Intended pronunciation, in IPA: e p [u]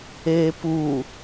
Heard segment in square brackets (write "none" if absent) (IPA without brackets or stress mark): u